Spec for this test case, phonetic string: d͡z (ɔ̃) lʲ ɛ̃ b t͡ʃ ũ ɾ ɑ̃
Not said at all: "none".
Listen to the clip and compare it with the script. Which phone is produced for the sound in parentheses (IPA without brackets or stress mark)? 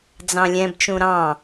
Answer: ɑ̃